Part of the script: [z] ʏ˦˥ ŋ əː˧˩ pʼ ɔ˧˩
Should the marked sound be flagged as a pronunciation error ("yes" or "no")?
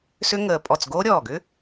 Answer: yes